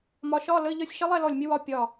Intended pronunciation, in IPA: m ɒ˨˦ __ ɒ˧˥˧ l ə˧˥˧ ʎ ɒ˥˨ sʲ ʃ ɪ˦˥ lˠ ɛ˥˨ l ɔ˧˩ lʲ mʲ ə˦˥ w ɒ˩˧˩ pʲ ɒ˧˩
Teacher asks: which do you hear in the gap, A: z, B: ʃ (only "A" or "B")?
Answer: B